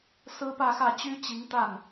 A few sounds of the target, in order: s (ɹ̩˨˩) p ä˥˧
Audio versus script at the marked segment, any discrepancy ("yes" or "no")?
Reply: yes